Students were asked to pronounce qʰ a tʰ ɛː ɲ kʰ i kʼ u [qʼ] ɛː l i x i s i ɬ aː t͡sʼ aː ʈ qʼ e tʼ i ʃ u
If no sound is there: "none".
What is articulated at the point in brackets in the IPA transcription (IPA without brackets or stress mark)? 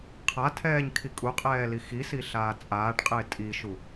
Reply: qʼ